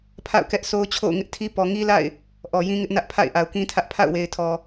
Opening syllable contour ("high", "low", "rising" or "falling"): falling